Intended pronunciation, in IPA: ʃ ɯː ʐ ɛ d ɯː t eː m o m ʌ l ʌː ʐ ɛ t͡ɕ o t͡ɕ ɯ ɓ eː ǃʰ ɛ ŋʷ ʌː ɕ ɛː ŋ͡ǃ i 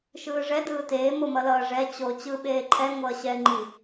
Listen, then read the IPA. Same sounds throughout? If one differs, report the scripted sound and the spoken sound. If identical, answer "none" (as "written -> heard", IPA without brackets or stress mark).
none